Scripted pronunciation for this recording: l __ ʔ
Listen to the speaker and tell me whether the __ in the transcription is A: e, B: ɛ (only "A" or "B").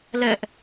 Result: B